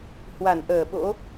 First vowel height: low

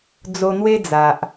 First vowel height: mid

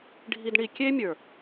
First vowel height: high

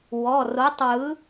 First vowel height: mid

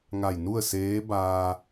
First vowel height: low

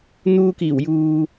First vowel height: high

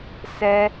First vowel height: mid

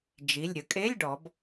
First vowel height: high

